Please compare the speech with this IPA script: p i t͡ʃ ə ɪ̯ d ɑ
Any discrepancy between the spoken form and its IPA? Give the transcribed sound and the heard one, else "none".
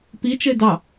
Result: none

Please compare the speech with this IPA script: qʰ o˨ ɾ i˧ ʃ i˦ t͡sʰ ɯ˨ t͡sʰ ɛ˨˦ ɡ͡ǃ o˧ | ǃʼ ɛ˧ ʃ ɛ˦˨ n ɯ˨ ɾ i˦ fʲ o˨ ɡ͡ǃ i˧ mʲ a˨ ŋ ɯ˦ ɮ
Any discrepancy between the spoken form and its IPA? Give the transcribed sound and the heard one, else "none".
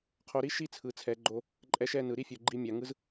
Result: ɮ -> z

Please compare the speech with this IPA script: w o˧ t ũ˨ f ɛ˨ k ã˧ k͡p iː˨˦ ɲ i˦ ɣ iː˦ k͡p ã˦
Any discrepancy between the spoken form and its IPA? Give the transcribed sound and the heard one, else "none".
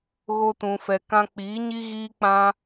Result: w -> ɣ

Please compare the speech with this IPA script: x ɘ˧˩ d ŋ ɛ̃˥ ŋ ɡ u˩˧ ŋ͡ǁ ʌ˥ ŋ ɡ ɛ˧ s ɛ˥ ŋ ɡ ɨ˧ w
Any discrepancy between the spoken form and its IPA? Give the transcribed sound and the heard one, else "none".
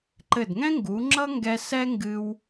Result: x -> ǃ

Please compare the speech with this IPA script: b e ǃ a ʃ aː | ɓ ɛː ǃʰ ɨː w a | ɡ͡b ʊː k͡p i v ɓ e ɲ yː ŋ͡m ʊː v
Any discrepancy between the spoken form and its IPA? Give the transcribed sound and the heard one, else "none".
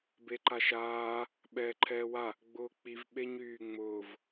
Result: ɨː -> ɛː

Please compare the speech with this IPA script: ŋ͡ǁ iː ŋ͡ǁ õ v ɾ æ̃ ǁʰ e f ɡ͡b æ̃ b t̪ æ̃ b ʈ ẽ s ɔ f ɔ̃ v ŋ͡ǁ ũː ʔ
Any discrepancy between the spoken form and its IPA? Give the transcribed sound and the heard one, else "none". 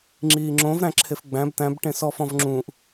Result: none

